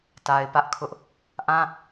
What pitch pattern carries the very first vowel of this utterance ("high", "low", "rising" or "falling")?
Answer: low